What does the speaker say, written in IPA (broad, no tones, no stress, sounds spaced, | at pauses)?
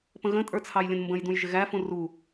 p ə̃ ɣ ə̃ tʼ ə˞ t͡sʰ ɑ j lʲ ə̃ n m b ə̃ j d ũ j ʒ ɪ ɣ æ f ũ r u